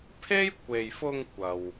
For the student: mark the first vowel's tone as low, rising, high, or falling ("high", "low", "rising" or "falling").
high